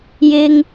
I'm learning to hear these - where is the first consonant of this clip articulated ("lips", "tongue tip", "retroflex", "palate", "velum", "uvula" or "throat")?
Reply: palate